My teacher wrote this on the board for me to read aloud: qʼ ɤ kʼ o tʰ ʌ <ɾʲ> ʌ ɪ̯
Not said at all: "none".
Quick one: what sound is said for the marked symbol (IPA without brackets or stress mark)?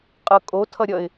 ɾʲ